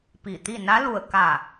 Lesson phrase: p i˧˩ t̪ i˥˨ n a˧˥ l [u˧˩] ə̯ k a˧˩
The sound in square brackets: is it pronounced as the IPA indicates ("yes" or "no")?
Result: yes